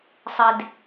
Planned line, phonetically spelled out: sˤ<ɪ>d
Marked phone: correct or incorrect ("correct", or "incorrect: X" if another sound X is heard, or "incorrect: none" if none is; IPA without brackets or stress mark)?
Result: correct